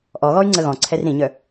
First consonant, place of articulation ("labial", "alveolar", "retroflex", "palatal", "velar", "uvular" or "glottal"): glottal